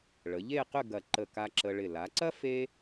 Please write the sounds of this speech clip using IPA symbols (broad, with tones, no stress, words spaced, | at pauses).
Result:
ɭə˩˧ʎe˥˧qʏ˥˧ ɡɐ˧˩ ǃə˧˩ka˧ ǁə˧ɭɪ˧˩ la˩˧ǀɐ˥ fe˥